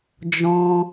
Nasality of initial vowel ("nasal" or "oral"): nasal